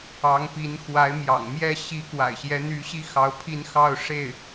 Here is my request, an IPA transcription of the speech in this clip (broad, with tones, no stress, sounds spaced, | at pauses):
ɑ˧˥ ŋ p i˧˥ n x w a˧˥ ɪ̯ m j ɑ̰˨˩ ŋ m j ɛ˥˩ ɕ i˧˥ k w a̰˨˩ ɪ̯ ɕ j ɛ˧˥ n̪ y˧˥ ɕ i˥ x ɑ˧˥ ʊ̯ pʰ i˥˧ n x ɑ˥˧ ʊ̯ ʂ e˥˩ ɪ̯